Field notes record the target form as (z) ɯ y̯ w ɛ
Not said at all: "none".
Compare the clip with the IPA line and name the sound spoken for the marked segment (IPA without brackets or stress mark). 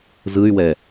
z